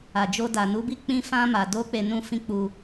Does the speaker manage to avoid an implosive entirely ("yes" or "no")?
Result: yes